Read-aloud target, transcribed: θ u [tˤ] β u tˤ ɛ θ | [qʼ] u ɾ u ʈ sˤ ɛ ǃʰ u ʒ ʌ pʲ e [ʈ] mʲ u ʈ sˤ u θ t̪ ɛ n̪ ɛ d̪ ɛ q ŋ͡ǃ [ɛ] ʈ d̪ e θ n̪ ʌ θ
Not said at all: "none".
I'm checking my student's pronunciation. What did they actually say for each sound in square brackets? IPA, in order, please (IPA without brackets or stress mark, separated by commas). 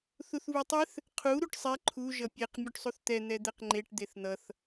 θ, qʰ, q, e